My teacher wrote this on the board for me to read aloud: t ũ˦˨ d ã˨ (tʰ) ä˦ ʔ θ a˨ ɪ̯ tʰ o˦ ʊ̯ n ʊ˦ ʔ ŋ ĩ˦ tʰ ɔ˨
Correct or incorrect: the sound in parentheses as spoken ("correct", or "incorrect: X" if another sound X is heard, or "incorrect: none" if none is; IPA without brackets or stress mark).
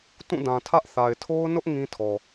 correct